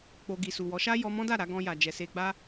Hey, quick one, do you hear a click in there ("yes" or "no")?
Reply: no